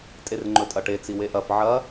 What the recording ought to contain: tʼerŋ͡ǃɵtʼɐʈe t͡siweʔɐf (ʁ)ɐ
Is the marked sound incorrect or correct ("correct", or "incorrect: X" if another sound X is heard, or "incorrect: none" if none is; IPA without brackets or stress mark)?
incorrect: ʕ